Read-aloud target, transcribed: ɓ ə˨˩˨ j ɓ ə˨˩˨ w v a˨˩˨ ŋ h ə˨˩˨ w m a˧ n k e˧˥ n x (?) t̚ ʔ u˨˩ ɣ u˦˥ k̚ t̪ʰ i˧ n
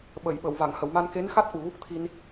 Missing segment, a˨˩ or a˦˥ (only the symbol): a˦˥